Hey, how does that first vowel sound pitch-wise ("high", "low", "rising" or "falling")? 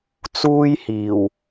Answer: high